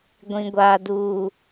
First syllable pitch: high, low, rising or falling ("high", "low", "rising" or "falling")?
low